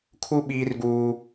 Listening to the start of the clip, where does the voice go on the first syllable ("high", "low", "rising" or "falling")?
high